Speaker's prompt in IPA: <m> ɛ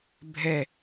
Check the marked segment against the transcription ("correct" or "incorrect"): incorrect